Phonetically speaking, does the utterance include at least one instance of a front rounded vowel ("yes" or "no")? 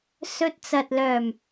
yes